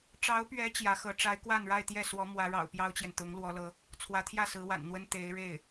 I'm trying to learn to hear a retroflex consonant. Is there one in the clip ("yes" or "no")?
yes